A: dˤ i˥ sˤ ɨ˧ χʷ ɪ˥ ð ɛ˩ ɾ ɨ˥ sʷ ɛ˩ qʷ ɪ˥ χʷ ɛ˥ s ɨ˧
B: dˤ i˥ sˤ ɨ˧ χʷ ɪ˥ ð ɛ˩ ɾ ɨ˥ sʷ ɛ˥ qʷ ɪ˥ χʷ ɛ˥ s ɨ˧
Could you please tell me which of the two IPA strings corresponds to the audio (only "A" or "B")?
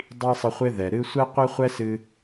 B